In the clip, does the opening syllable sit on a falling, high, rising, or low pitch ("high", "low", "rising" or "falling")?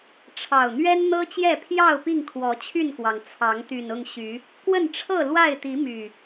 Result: low